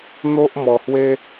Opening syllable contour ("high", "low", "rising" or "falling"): high